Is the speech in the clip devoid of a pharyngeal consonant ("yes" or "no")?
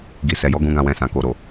yes